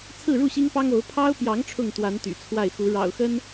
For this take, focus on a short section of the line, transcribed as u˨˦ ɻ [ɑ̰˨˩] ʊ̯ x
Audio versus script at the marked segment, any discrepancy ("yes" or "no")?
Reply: no